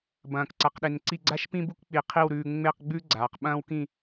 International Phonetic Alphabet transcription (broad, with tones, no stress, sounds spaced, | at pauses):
b ɐ̃ː˧˩ k ǀ a˧ q ɗ e˧ n ǀ i˥˧ ɡ͡ǀ a˥ ʃ p ĩ˥ b u˥ k k͡p i˧˩ qʰ i˥˧ w ɾ ʉː˧ ŋ͡m e˥˧ q ɡ͡b ʉ˥ ɡ͡ǀ aː˩˧ q ɓ ɐ̃ː˥ w k ĩ˥˧